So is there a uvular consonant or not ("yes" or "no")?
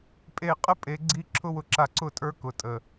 yes